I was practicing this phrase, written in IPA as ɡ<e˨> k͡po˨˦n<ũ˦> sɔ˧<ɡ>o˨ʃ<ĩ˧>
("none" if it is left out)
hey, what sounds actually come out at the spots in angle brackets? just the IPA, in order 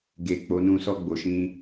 e˨, ũ˧, ɡ͡b, ĩ˧

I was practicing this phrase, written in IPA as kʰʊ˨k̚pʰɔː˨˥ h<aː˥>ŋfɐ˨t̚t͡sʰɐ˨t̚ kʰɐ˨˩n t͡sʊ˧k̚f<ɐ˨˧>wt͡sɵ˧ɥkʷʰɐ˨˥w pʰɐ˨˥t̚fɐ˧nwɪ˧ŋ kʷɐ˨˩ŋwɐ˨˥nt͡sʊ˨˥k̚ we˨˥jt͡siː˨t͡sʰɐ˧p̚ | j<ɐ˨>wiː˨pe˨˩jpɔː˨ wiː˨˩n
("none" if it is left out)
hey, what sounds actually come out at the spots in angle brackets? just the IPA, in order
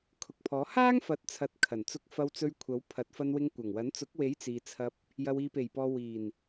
aː˥, ɐ˧, ɐ˨

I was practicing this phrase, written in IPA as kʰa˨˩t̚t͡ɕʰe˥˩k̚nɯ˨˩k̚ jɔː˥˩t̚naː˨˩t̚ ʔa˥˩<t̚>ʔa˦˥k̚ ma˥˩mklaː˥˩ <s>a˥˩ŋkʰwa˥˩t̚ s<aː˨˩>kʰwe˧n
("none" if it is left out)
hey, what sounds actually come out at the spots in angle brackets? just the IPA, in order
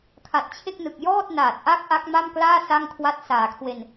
k̚, s, aː˨˩

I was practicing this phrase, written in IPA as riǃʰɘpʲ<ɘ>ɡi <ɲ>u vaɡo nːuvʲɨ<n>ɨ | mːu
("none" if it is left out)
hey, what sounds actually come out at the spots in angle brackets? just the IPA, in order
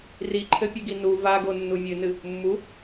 ɘ, n, n

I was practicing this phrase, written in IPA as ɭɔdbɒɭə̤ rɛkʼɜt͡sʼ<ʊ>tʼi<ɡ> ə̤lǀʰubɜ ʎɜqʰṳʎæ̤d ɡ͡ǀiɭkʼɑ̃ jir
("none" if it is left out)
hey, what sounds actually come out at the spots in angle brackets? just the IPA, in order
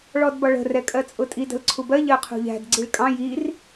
ʊ, d

